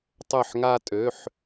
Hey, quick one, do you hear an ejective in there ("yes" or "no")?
yes